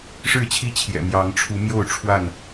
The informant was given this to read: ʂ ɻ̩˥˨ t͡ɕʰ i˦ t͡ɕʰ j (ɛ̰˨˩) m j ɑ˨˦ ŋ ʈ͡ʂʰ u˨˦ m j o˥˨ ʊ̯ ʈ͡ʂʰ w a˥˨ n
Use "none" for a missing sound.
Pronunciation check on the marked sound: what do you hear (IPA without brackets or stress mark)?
ɛ̰˨˩